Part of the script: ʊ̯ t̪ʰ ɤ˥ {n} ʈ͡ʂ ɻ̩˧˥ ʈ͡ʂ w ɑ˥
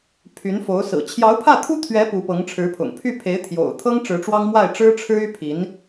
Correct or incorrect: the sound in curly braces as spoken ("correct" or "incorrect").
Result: incorrect